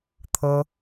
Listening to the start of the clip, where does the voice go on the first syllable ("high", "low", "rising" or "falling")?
high